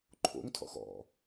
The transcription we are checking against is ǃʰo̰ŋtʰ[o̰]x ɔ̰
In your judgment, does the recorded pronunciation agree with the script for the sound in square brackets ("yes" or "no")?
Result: no